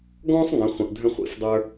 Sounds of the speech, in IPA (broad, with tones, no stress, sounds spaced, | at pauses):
ɡ ɔ̃ː˥ sˤ ŋ ə̃˩˧ χʷ ə̃˩ ʔ dʱ ə̃˧ χʷ ḭ˩˧ f dˤ ə˞˧